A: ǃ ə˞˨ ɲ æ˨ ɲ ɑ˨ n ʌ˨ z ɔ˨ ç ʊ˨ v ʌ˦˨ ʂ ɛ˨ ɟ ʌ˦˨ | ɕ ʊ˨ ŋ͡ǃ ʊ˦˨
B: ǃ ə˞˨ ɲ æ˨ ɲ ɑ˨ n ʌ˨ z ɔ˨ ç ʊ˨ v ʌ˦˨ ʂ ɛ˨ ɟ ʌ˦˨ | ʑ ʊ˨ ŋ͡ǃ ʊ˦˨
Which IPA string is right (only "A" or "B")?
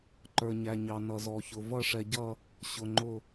A